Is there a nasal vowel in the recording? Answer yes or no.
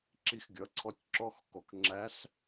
no